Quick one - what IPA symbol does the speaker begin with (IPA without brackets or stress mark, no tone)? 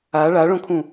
a